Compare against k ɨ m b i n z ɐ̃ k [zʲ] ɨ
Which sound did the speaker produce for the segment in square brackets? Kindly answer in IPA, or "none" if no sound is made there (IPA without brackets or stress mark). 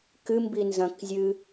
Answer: zʲ